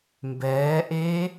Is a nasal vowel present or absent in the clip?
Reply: absent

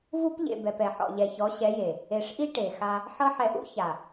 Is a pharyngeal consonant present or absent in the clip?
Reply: present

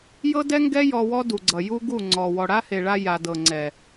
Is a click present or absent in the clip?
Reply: present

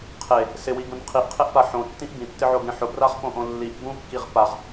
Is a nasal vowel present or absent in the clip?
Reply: present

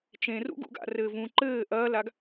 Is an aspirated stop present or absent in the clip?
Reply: absent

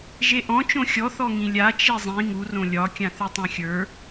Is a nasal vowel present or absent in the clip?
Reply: present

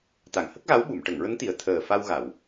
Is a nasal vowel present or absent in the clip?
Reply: absent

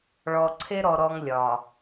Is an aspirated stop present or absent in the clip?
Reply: present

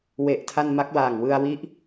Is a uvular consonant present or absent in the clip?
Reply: absent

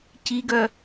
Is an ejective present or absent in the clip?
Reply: absent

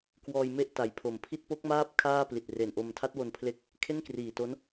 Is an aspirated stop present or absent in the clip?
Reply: present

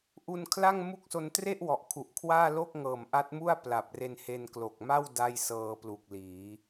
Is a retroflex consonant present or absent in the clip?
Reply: absent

